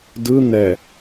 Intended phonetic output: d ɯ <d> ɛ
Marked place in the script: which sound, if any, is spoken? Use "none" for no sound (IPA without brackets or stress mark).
n̪